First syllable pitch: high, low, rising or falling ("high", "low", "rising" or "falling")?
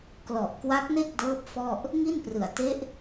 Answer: low